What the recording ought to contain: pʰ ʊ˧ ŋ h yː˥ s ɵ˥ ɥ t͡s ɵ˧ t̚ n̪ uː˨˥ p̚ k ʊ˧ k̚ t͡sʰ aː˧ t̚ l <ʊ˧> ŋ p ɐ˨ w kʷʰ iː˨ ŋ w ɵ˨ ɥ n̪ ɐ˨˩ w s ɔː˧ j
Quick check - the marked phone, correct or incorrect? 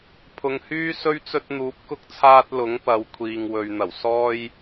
incorrect